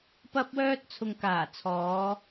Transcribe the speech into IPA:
p ɐ˥ p̚ w œː˥ t̚ t͡sʰ ʊ˨ ŋ k aː˨˩ t͡sʰ ɔː˨˧

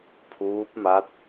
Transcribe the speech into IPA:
pʰ uː˦˥ p̚ m a˦˥ t̚

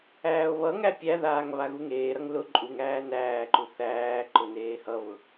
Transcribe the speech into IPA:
æː o̯ β ʌ ŋ æ pʲ æ ð aː ŋ β a ɣ u ŋ eː ɾ ʌ ŋ l ʊ ǃʼ u ŋ æː n æː ǃ u θ æː ǃ ʊ n eː h ʌ β ʊ

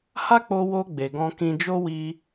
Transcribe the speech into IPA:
h a˦ k͡p o˧ w o˧ ɡ͡b e˨ ɡ ɔ̃˧ k ĩ˧ d͡ʒ o˦ w i˧

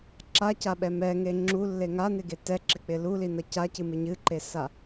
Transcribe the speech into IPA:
ǁ a c a ɓ ɛ m ɛ ŋ e ŋ͡ǁ u lː e ŋ a n ɪ ɡ e t ɛ ǁ ɪ k͡p ɪ l u l i n ʌ c a c ɨ m ɪ ɲ ɨ ǃ e s a

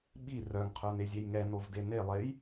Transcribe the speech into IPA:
ɓ i r œ ŋ qʰ œ n e zʲ e j ŋ ɛ n o v d e n e lˠ e j

